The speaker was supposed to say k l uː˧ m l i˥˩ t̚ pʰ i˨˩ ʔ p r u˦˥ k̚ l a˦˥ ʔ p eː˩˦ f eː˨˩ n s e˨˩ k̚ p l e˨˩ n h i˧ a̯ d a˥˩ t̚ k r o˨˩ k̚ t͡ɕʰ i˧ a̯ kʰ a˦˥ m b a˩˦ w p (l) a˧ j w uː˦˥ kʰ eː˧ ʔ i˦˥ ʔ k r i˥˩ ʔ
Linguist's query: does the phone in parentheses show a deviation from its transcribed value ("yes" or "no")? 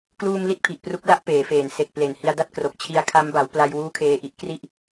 no